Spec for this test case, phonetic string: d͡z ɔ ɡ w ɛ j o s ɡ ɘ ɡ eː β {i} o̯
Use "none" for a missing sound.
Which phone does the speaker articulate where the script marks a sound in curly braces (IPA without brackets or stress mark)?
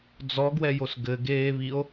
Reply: i